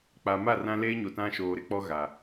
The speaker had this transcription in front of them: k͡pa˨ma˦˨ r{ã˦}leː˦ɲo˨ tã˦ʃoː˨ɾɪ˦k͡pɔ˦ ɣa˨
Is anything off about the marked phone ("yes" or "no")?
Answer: no